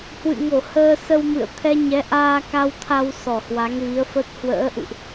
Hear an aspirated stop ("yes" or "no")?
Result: yes